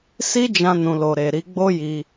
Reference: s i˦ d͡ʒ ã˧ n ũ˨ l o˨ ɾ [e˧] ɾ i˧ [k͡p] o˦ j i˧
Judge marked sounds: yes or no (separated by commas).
no, no